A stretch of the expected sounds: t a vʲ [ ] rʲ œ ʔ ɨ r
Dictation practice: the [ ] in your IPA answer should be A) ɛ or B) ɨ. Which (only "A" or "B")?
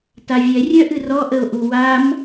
A